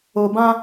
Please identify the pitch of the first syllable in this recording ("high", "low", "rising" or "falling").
low